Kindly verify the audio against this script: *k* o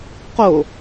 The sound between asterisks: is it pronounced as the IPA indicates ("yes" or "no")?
no